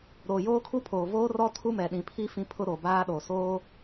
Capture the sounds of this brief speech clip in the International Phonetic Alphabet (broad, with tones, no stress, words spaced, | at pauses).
ɾoː˨joː˦kʰu˦pʰoː˨ voː˦rɔ˦ tʰu˦mɛ˨ɗĩ˨pʰi˦ fĩ˦pʰʊ˦ ɾo˨baː˦ɗo˨ soː˦